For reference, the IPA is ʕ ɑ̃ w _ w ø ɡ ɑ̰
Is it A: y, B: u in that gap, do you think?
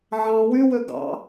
A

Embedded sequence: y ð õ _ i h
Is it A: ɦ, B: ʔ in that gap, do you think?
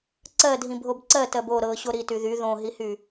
A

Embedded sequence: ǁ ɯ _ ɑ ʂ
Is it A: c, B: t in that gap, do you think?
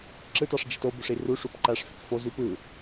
B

